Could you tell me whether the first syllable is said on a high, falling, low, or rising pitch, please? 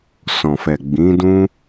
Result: low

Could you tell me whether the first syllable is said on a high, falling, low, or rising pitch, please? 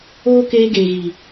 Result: high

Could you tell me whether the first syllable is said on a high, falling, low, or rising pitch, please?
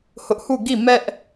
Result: high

